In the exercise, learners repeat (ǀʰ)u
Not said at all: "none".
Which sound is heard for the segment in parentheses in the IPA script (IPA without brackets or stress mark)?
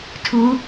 tʰ